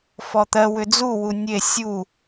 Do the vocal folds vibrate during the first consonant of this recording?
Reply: no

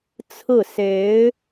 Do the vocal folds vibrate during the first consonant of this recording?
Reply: no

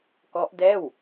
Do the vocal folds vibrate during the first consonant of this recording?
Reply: no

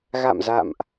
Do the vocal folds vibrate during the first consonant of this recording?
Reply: yes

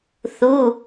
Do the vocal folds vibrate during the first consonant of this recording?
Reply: no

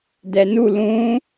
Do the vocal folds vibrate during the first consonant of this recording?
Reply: yes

